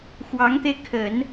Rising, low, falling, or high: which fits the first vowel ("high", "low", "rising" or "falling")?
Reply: rising